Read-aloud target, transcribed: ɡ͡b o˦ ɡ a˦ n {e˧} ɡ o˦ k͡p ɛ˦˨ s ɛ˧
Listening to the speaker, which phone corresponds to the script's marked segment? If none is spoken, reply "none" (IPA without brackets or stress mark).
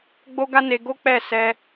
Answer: e˧